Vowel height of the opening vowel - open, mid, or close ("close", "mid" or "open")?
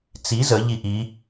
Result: close